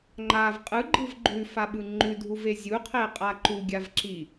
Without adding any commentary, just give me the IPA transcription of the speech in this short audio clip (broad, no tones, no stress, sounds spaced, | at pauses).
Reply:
ŋ͡ǃ a v qʼ ɯ ɡ͡ǃ ɯ v ɡ͡ǃ ʉ f a ɓ ɯ ŋ͡ǃ ʉ dʱ u v e zʲ u qʰ e qʼ a ǃ u ɡʲ a v ǁ i